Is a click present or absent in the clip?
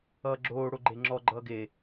present